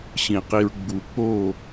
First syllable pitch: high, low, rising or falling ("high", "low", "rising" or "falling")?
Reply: low